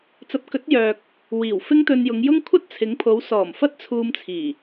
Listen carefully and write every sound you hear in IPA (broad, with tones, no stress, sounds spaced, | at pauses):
t͡s ɐ˨˥ p̚ k ɵ˨˥ t̚ j œː˨ k̚ | w iː˨˩ w f ɪ˥ ŋ t̪ ɵ˧ n j ʊ˨˧ ŋ j ʊ˥ ŋ kʷʰ ɐ˥ t̚ t͡sʰ ɪ˨˧ ŋ pʰ o˨˧ w s ɔː˨˩ m f ɐ˥ t̚ t͡sʰ uː˧ m t͡sʰ iː˨˩